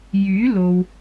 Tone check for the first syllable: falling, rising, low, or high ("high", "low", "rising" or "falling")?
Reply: rising